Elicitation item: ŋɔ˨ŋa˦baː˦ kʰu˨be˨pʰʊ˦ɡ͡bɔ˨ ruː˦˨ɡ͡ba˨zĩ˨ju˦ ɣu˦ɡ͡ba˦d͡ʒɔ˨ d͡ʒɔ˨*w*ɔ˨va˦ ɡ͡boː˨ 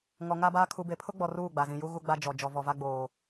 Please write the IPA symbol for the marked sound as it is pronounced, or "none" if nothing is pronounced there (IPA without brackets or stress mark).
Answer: v